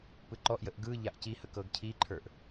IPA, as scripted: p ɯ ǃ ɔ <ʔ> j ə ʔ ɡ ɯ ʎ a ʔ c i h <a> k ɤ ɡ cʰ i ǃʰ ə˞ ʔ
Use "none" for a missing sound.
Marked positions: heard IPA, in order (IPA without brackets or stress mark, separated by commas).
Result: ʔ, ə